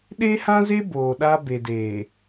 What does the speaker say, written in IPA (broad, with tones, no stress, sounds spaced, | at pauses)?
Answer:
ɗ e˦ h ã˦ z e˦ b oː˨ ɗ a˦ b e˨ d eː˨